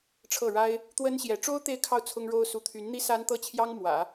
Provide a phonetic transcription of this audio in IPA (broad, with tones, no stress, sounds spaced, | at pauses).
ʈ͡ʂʰ ɤ˥˩ ɻ a˥ ɪ̯ | t̪ w ə˥ n ɕ j ɛ˧˥ ʈ͡ʂ o˥ ʊ̯ t̪ e˥˧ ɪ̯ kʰ ɑ˥˩ ʊ̯ t͡sʰ ʊ˥ ŋ ɻ o˥ ʊ̯ s u˧˥ t̪ʰ y˧˥ n n̪ i˥ s a˥ n t̪ ɤ˥˩ t͡ɕʰ j ɑ˥ ŋ m w ä̰˨˩˦